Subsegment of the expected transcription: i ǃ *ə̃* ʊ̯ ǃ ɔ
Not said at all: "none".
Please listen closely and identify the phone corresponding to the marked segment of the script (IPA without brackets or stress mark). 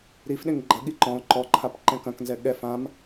ɔ̃